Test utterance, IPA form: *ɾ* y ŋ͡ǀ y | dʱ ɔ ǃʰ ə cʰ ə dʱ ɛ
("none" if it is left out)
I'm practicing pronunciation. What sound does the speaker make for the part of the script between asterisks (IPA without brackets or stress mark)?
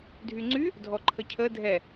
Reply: dʱ